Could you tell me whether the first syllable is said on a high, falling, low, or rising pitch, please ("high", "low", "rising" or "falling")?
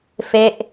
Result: falling